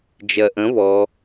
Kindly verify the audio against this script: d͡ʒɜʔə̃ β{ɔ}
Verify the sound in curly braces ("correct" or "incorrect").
correct